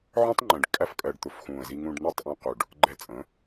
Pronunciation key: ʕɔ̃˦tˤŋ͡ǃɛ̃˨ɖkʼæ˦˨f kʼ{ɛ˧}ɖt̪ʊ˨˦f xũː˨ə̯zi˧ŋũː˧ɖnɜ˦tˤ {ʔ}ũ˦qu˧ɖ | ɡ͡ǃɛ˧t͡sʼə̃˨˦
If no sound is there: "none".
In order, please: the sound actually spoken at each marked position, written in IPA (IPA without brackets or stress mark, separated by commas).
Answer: ɜ˧, ʔ